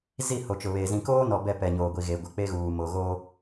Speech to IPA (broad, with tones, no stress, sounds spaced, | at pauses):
z i˦˨ h o˨ t͡ʃ ʊ˨ β eː˨ z ĩ˨ k oː˦ n ɔ˨ b ɛ˦˨ p ɛ˨ ɲ oː˨ ɡʷ i˨ ɣ e˨ ɡʷ ɪ˨ k͡p e˦ ɣ uː˨ m o˨ ɣ oː˦